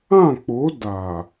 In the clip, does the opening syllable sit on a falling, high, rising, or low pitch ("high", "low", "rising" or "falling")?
falling